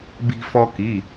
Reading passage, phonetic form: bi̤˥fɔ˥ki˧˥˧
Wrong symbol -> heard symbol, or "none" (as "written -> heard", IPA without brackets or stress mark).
none